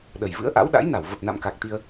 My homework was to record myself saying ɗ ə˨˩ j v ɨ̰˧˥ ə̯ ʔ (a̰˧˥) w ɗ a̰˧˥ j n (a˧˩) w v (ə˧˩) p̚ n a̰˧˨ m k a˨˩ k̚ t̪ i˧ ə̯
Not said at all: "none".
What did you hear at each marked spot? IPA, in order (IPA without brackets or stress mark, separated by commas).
a̰˧˥, a˧˩, ə˨˩